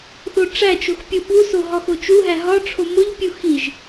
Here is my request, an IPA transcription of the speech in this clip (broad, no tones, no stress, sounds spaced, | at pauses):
θ o ʈ͡ʂ æ t͡ʃ o x pʲ u ɓ u s o ɦ ɒ x o t͡ʃ u ɦ æ ɦ ɒ ʈ͡ʂʰ o m o ʎ pʲ u x i ʒ